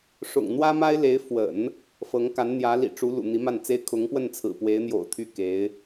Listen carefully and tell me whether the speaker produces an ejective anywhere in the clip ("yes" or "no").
no